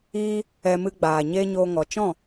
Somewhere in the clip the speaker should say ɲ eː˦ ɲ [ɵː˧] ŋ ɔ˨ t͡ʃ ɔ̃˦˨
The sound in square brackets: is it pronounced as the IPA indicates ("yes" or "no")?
no